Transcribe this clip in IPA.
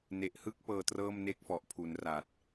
ne˨˩ʔhɯ˥˩k̚ pɤː˧trɤː˥˩mne˥˩k̚ fɔ˨˩ʔpʰu˩˦n ra˨˩t̚

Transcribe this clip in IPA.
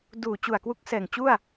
duː˨˩ t͡ɕu˨˩a̯kwu˦˥k̚sɛː˨˩ŋt͡ɕu˥˩a̯

